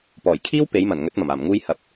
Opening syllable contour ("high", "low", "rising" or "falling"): low